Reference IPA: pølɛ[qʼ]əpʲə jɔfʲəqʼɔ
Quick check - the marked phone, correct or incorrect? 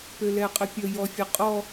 correct